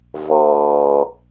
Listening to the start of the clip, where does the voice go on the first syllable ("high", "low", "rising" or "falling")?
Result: low